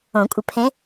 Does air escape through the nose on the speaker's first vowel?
yes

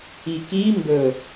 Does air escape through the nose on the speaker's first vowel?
no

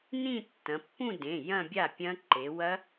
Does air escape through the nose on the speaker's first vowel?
yes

